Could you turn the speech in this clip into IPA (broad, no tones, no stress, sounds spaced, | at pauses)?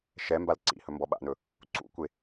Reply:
ʃ ɛ m b a l ǀ ḭ h ɵ m b ɔ ɓ a̰ n ɵ | ǀ ṵ kʷ e